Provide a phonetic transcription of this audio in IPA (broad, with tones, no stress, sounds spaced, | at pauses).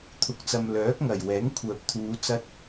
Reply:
t̪ʰ ʊ˨ k̚ t͡s ɐ˨ m l œː˨˥ k̚ ŋ ɐ˨˩ j w ɛː˨˥ ŋ kʷʰ œː˨ p̚ t̪ʰ uː˨˧ t͡s ɐ˧ t̚